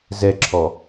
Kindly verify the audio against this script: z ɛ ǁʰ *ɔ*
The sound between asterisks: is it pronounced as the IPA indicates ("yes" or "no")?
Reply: yes